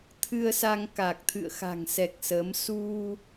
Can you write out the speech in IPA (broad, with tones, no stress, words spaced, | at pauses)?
t̪ʰɨ˧ə̯sa˧ŋ ka˨˩k̚t̪ʰɨ̰˧˨ə̯xa̤˨˩ŋ sɛ˨˩k̚ sə˨˦m su˧